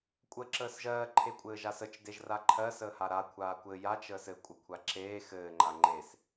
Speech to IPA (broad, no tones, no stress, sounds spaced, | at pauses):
kʷʼ əː ǁ əː s ʒ ɜː ǃʰ e kʷʼ ɘː ʒ a s ə t͡ʃ d e ʒ r a ǃʰ ɜ s əː h a ɾ a kʷʰ aː kʷ ɘ j a t͡ʃ əː s ɘ kʷʼ ə kʷʰ a ǁ eː x ɘː ŋ͡ǃ a ŋ͡ǃ e s